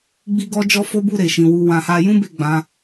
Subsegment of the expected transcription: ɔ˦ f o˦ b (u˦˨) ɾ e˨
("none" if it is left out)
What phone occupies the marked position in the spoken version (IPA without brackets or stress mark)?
u˦˨